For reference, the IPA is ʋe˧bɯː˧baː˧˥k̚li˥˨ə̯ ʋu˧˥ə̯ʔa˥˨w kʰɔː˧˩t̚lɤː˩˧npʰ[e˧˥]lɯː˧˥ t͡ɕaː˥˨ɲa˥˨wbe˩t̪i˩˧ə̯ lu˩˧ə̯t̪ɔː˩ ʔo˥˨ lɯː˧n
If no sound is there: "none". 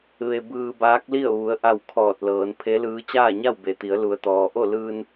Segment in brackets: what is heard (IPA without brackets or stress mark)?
e˧˥